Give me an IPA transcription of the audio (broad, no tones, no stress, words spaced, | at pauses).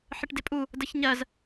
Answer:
ħəʈdɪpʼu | dəçɲɜz